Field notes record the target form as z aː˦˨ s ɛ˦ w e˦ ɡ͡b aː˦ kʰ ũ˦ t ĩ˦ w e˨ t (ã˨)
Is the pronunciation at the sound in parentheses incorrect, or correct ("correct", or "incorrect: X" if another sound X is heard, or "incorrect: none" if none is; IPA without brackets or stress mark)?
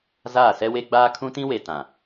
correct